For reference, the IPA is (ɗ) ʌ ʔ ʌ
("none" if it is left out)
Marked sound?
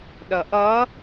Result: ɗ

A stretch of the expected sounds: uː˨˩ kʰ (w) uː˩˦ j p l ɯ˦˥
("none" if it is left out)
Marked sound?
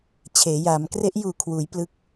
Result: w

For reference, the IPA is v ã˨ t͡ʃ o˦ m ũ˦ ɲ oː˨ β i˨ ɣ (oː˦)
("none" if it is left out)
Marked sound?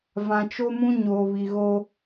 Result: o˦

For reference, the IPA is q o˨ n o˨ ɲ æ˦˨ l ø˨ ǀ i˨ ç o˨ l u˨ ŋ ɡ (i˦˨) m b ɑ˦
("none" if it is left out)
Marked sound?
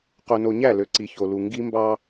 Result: i˦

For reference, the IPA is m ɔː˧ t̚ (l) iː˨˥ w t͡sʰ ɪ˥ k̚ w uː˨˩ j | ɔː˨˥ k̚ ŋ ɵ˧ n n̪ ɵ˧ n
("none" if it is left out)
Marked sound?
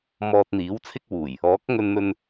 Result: n̪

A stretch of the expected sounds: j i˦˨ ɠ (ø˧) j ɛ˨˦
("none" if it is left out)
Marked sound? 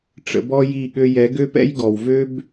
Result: ø˧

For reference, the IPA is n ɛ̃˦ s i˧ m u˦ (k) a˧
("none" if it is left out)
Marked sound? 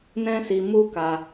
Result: k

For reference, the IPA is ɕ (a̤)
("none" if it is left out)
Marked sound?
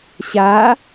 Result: a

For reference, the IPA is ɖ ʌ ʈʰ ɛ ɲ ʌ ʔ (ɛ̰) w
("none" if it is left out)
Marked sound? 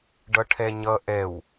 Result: ɛ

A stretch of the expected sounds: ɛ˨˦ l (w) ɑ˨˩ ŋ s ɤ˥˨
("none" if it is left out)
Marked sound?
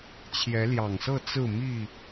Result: j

